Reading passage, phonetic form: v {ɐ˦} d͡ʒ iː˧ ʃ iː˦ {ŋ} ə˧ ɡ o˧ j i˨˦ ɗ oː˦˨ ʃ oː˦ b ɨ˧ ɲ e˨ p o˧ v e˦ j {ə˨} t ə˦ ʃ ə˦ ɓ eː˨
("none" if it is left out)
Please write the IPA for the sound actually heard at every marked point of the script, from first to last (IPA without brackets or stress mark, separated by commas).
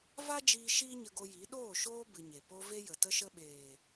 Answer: a˦, ɲ, ə˨